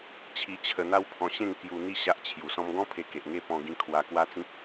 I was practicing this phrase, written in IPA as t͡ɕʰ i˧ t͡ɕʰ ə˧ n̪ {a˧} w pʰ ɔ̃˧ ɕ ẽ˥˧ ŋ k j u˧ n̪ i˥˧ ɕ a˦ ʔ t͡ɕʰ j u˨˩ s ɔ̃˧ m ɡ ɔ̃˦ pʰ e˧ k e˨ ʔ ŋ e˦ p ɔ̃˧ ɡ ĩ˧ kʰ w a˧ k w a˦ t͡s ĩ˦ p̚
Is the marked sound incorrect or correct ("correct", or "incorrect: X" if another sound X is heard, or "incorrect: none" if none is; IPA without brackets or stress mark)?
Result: incorrect: a˦